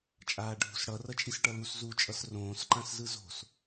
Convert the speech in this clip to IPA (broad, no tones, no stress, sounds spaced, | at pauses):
t͡ʃʼ aː ɖʱ ṳ s ɽ ʌ r ʌ t͡ʃʼ i s ʈ ʌ l u s z u t͡ʃʼ ʌ s r õː s ǃ ã s z ɯ z o̤ s